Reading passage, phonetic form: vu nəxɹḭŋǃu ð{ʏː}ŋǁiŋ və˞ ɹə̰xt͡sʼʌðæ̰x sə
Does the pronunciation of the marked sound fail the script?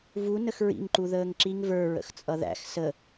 yes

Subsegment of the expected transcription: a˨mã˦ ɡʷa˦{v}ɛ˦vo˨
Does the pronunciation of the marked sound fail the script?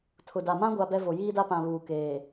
yes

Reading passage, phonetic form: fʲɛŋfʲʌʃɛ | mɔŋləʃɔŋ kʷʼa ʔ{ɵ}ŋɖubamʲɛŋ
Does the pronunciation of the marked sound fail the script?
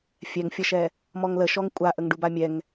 yes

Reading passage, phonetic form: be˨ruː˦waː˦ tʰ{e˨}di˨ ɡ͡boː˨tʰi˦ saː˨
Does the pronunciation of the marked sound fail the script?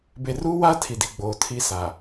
yes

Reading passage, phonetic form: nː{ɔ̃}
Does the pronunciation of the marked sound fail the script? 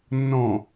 no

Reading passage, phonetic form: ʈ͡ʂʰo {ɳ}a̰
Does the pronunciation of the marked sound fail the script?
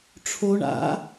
no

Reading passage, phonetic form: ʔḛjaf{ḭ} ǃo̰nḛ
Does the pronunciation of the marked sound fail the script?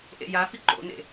yes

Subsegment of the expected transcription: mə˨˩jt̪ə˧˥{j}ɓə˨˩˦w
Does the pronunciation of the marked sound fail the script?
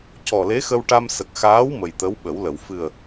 yes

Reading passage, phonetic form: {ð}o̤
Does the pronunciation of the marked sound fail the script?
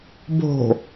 yes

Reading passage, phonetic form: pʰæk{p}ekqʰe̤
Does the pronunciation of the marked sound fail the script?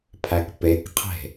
no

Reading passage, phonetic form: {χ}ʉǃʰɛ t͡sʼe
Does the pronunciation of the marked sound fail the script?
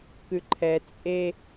yes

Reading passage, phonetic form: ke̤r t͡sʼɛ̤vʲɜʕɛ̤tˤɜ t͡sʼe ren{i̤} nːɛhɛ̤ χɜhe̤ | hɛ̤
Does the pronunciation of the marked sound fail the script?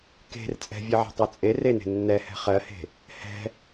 yes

